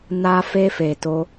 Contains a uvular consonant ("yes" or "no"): no